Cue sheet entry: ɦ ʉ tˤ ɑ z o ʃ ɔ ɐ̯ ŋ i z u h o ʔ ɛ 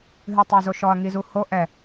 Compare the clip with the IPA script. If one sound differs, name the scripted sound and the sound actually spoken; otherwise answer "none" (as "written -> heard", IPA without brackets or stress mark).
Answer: none